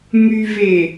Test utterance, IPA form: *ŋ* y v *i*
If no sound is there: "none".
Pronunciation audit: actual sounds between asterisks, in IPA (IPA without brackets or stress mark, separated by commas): ŋ, e